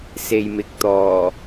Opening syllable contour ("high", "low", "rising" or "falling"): low